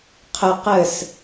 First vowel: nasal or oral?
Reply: oral